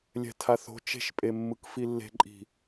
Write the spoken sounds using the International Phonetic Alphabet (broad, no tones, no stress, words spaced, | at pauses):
lʲɛ̤tʰaθo̤ t͡ʃe̤ʃpʼemːɯk filːe̤ǃʼi̤